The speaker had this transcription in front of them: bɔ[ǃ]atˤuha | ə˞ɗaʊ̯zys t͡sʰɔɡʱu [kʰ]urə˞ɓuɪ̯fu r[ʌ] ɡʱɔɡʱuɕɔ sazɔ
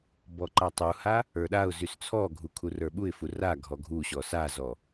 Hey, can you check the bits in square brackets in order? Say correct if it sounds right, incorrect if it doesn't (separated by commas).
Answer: correct, correct, incorrect